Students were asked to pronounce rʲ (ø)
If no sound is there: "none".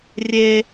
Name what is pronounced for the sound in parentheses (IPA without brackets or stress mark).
e